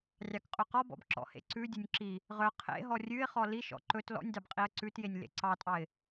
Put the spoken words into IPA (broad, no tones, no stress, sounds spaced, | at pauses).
rʲ ɑ k qʼ ɵ q ɔ b ɔ̰ b ǁ ɔ̰ h ḛ ǀ ʉ dʲ ɵ nʲ ǁ i | ʁ œ qʰ ḛ ɦ ɔ rʲ ʉ ɪ̯ χ ɔ l i ʃ ɔ̰ ǃ ɵ t l ɔ̰ nʲ d ɑ b qʼ i ə̯ ǀ ʉ t j e nʲ l ḛ ǀ ɑ tʼ ɑ ɪ̯